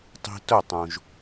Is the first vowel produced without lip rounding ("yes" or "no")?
yes